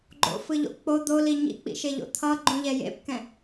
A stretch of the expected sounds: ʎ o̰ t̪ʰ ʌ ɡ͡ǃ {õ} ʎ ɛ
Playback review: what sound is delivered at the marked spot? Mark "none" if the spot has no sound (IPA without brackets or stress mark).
ũ